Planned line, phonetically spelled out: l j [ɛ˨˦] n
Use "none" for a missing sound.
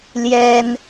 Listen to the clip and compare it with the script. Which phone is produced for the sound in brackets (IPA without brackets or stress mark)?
ɛ˦